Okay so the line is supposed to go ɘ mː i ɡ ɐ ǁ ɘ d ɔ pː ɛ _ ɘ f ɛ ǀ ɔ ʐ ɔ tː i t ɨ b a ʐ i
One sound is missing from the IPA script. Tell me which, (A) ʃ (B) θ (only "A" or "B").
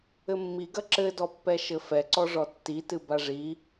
A